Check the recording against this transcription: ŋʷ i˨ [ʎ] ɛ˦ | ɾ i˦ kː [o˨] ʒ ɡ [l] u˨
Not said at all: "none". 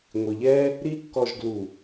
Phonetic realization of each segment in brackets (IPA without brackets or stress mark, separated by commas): ʎ, ɔ˨, l